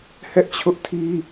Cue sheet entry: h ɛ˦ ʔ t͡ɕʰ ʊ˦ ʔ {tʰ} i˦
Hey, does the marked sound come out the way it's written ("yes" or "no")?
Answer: yes